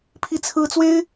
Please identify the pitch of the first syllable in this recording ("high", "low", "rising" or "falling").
falling